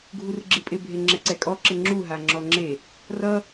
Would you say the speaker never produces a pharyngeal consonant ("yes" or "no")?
yes